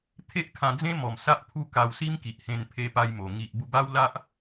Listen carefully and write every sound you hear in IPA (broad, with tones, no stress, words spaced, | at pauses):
t̪ʰe˦ʔkʰã˧d͡zẽ˦mɔ˨˩m sa˦ʔpʰu˦ ka˧wsi˦m ki˨ʔhẽ˧n pʰe˧pa˧jmo˨˩ ŋi˨ʔ bu˧ba˦wla˦ʔ